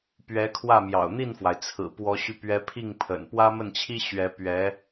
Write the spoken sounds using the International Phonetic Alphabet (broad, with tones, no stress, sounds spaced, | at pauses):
p ɥ ɛ˧˥ kʰ w ä˥˩ m j ɑ̰˨˩ ʊ̯ n̪ i˥˩ n f w a˩ ɪ̯ t͡sʰ ɹ̩˨˩ p w ɔ˧˥ ɕ y˧ p ɥ ɛ˧˥ pʰ i˥˩ ŋ pʰ ə̰˨˩ n p w ä˥ m ə˥˩ n t͡ɕʰ i˥ ɕ ɥ ɛ˧˥ p ɥ ɛ˧˥